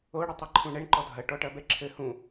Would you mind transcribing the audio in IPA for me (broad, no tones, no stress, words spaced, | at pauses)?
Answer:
oɽɘtˤɐ ǃʰũɳɛɳǃɔ dʱɐ ʈɔʈɐbɛǁʰɘ hũ